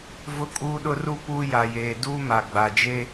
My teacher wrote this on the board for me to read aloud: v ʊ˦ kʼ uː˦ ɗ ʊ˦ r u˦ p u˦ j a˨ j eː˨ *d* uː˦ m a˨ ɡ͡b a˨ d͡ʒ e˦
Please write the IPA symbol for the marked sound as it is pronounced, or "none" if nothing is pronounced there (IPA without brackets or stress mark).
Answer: d